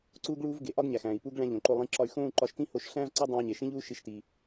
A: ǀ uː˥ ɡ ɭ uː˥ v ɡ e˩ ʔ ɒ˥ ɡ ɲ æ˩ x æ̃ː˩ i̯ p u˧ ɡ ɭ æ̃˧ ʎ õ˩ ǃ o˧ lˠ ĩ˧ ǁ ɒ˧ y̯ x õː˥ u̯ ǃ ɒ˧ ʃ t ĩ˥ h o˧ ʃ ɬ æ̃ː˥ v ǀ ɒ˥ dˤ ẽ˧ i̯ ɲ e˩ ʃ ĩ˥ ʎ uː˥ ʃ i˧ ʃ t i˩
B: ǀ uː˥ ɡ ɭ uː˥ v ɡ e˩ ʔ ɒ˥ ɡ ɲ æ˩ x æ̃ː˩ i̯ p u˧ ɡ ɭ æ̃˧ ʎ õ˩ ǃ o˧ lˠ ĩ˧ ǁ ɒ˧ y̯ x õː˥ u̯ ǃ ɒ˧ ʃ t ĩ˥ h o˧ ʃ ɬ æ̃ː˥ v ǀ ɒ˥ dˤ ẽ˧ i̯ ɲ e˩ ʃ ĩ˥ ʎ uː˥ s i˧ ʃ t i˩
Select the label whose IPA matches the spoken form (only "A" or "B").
A